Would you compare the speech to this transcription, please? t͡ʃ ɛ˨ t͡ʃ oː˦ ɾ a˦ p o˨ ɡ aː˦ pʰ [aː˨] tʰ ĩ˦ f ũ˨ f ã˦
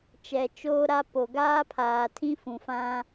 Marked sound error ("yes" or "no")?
no